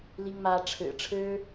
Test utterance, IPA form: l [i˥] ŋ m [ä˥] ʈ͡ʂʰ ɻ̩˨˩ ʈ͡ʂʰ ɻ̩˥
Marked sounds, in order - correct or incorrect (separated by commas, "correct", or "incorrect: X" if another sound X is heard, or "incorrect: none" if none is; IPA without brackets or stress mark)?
correct, correct